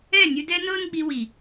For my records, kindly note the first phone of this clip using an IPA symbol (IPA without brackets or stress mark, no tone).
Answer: ɛ